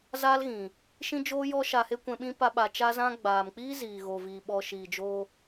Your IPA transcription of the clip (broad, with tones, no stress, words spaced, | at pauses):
zaː˦lɣĩ˨ | ʃĩ˦d͡ʒoː˦jɔ˦ ʃa˧he˦kʷɛ̃˧ɓĩ˦ pa˦ɓa˧ t͡ʃa˧zã˧ ɡ͡baː˨mk͡piː˦ ziː˨ɣoː˨viː˨ ɓɔ˧ʃiː˨d͡ʒoː˦